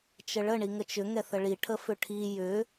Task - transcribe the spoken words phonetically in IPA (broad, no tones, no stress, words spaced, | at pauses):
t͡ʃəɭə ɳiŋət͡ʃʏ ŋɛθəɭi ʈʰəfʏʈʰi jʏ